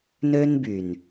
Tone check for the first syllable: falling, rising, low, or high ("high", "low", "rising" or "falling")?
high